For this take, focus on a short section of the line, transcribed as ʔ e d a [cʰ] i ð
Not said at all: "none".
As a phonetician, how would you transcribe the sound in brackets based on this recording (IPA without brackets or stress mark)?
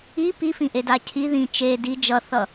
cʰ